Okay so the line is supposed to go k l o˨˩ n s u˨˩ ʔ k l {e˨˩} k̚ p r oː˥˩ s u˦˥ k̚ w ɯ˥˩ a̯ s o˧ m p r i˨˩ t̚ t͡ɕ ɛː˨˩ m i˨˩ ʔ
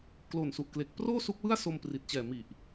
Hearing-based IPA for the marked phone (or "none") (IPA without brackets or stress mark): e˨˩